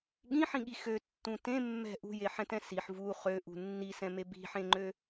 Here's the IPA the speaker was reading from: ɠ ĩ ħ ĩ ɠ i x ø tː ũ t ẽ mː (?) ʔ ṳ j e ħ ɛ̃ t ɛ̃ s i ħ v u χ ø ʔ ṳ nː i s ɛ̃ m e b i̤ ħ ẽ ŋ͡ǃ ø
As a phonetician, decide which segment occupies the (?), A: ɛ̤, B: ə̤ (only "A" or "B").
A